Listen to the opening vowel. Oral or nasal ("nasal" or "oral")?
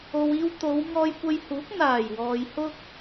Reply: oral